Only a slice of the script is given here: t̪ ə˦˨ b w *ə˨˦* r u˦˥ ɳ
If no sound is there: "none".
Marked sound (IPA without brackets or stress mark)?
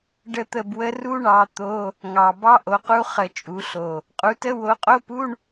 ə˦˥